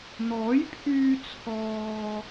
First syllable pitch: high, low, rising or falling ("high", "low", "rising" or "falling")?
rising